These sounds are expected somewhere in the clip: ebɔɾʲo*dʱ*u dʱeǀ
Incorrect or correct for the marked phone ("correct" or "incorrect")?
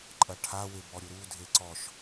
incorrect